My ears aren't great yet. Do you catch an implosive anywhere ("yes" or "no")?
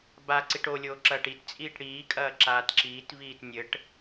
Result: no